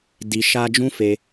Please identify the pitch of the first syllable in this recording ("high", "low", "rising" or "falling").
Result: low